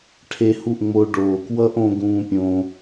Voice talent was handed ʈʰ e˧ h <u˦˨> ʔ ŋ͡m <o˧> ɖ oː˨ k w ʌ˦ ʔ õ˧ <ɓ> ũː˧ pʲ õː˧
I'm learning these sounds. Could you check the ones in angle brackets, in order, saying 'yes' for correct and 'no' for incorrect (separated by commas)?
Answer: yes, yes, no